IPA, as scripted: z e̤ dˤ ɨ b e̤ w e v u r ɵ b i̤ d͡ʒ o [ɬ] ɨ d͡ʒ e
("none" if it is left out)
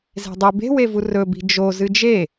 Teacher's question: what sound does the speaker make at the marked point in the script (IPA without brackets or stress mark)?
z